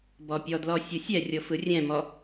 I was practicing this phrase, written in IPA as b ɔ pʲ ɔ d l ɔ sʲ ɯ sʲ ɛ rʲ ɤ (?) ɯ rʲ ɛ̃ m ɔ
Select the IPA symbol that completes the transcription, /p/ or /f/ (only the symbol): f